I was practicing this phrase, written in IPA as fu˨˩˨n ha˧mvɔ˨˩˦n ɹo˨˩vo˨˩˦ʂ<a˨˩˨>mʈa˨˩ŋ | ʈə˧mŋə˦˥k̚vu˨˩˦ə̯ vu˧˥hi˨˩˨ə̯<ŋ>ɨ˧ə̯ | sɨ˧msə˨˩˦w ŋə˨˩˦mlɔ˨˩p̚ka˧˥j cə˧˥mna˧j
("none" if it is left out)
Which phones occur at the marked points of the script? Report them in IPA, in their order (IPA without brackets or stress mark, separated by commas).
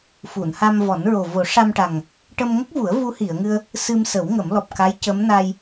a˧, ŋ